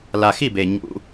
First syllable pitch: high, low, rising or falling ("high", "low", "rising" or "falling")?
low